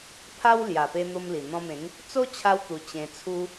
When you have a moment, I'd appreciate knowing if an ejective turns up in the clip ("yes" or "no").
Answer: no